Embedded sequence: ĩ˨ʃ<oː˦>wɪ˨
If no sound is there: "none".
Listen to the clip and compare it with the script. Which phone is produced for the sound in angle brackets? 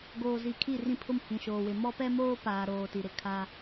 oː˨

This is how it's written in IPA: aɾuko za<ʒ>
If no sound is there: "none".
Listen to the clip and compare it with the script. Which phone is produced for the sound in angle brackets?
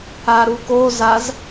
z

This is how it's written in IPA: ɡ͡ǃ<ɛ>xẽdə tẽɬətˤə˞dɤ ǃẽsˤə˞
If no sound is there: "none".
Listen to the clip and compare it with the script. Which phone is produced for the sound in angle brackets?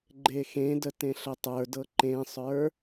e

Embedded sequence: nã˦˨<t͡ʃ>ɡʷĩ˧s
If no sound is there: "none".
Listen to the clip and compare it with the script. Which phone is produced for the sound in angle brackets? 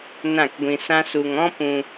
k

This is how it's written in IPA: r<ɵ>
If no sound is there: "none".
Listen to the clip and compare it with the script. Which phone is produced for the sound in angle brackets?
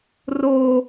o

